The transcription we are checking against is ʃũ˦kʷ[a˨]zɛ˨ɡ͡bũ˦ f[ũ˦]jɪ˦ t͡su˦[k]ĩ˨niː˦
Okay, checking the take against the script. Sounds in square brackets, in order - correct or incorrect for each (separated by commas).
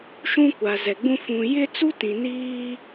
correct, incorrect, incorrect